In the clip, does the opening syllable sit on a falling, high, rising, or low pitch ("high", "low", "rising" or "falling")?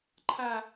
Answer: high